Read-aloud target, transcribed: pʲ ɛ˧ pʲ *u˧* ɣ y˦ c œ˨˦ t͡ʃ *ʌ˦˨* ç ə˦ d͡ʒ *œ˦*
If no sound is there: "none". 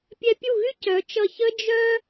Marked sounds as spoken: u˦˨, ʌ˦˨, œ˦

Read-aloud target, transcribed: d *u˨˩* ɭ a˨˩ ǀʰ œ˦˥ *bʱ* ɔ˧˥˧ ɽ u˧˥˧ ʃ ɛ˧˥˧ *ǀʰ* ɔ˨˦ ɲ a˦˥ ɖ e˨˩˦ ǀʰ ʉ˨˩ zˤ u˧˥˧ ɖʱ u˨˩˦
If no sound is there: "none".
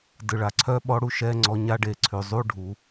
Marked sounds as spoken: ɯ˨˩, ɓ, ŋ͡ǀ

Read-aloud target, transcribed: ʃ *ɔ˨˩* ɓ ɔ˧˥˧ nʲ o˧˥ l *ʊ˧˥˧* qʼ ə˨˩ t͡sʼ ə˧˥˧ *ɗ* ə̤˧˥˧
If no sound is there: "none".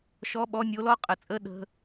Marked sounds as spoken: ɔ˧˥˧, ɔ˧˥˧, ɗ

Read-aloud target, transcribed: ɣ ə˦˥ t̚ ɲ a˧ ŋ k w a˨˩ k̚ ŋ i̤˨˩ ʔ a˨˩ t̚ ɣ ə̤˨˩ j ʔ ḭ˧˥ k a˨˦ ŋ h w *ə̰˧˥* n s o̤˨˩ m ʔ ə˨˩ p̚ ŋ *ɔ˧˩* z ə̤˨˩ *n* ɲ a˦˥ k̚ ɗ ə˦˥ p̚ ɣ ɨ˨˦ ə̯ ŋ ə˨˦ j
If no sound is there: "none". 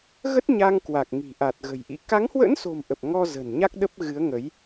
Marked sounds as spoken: ə̰˧˥, ɔ˧, n

